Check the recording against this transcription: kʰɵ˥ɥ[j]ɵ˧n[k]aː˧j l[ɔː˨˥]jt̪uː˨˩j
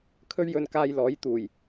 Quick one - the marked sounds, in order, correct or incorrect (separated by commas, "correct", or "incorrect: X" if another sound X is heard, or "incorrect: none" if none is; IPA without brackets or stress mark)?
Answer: correct, correct, correct